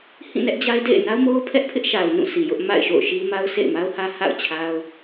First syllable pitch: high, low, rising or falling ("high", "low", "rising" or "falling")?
falling